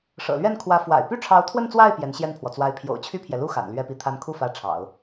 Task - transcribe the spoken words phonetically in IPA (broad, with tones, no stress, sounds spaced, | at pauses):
ʂ ɤ̰˨˩ l ɥ ɛ˥˩ n kʰ w ä˧˥ f w a̰˨˩ ɪ̯ p y˥ ʈ͡ʂʰ ɑ˧˥ ʊ̯ t̪ʰ w ə˥˧ n t͡s w a˥˩ ɪ̯ p j ɛ˧˥ n ɕ j ɛ˥˩ n pʰ w ɔ˩ t͡s w a˧˥ ɪ̯ pʰ j o̰˨˩ ʊ̯ t͡ɕʰ y˥˩ pʰ j ɛ˩ l u˥ x a̰˨˩ n l ɥ ɛ˥ p i˥˩ t̪ʰ a˧˥ n kʰ u˥˩ f ä˧˥ ʈ͡ʂʰ ɑ̰˨˩˦ ʊ̯